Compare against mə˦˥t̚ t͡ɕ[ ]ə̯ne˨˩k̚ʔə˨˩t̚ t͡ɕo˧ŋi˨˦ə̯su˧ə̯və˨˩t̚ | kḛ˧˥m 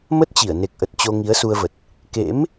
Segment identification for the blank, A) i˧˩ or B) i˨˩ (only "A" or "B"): A